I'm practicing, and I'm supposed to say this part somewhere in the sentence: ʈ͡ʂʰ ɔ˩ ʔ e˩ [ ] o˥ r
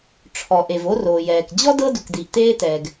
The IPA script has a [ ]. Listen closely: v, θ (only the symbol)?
v